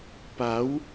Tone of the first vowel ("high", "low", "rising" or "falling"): rising